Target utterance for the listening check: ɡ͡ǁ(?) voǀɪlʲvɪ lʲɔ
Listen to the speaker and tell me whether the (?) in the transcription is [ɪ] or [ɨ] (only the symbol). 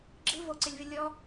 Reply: ɨ